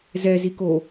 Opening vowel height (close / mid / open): mid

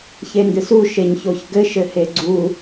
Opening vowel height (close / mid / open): mid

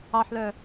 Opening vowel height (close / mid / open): open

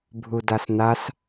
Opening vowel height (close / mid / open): close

